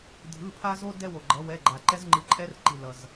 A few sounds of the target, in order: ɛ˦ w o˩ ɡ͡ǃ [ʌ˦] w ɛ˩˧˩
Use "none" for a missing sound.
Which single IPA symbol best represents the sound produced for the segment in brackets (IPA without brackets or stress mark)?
ʌ˩˧